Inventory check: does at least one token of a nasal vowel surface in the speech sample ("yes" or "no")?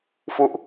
no